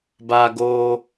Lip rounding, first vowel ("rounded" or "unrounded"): unrounded